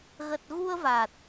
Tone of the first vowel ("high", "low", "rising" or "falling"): low